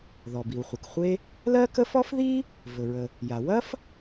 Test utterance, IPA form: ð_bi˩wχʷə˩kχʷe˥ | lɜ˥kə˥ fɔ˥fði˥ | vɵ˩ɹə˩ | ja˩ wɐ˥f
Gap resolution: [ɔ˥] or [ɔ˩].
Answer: ɔ˩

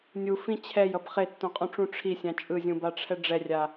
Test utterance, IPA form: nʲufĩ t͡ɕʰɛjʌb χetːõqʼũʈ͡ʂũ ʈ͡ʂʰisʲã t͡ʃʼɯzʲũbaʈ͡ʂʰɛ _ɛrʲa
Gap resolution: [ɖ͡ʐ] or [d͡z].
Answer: ɖ͡ʐ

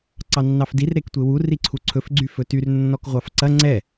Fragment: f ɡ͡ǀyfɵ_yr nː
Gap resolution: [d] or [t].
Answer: t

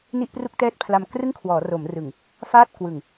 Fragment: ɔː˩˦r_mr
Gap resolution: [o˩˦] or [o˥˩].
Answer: o˩˦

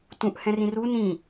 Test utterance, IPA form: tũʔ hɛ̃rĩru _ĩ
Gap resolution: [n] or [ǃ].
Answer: n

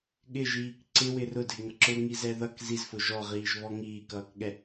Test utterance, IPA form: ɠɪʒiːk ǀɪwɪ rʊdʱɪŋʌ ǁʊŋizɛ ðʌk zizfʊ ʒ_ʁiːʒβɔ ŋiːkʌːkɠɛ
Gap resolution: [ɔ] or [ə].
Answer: ɔ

